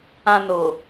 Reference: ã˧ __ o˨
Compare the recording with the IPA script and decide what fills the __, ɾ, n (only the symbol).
n